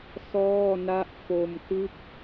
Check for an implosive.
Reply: absent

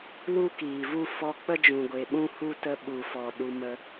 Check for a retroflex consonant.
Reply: absent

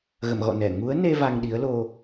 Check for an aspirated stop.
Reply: absent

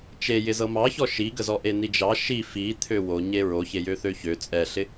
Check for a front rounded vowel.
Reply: present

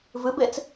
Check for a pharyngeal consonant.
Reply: absent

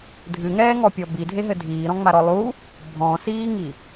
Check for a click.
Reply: absent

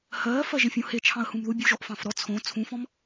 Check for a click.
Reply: absent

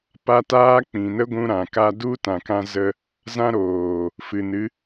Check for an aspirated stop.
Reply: absent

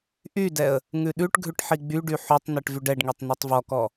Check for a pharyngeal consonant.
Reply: present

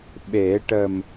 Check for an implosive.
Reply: present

